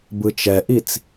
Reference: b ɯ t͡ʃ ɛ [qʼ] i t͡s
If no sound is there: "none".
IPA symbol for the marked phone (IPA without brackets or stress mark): ʔ